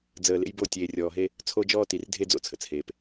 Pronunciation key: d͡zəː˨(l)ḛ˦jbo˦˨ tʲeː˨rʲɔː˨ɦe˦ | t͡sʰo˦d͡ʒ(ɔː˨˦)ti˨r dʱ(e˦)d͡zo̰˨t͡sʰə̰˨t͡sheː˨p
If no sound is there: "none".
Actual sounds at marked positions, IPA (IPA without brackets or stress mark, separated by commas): l, ɔː˦, e˦